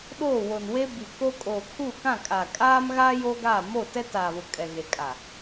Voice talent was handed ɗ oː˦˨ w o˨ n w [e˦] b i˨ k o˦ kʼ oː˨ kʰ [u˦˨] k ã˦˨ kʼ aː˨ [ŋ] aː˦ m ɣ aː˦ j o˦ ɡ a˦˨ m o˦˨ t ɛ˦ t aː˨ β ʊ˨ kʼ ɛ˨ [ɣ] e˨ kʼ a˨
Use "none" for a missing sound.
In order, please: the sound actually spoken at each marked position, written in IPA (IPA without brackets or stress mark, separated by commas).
e˦, u˦˨, kʼ, ɣ